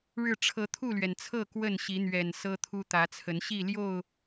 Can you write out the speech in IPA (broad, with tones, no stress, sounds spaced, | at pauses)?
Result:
ɻ ɻ̩˥˨ ʈ͡ʂʰ ɤ˨˦ t̪ʰ u˥˨ l ɥ ɛ˩ n t͡sʰ ɤ˥˨ k w ə˥˨ n ɕ i˨˦ n̪ ɥ ɛ˨˩ n s ɤ˦ t̪ʰ u˦ t̪ ä˨˦ t͡sʰ ə˨˦ n ɕ i˥˨ l j o˥˨ ʊ̯